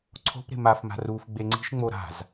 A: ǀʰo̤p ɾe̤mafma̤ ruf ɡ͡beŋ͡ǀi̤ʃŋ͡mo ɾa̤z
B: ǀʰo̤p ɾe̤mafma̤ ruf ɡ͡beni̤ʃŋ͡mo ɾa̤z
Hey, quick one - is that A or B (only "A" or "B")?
A